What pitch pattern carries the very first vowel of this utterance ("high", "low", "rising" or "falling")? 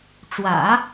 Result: low